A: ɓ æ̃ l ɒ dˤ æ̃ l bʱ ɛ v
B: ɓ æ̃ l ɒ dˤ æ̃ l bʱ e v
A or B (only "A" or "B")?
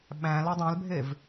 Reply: B